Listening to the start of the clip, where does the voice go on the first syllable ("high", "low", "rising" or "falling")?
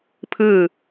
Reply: falling